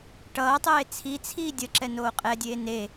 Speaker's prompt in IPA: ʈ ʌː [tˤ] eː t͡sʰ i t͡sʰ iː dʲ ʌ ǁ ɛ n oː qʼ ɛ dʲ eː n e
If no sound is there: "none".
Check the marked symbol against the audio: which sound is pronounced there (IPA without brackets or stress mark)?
tˤ